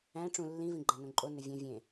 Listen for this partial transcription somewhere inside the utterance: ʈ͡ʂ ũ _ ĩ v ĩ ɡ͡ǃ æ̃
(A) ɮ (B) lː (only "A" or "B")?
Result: B